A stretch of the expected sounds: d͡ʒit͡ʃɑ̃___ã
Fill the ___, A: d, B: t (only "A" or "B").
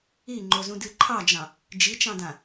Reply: A